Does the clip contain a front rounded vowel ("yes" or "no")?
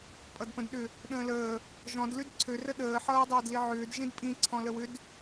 yes